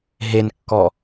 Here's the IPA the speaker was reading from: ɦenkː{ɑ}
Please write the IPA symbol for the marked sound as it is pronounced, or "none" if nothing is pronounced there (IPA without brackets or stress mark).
ɔ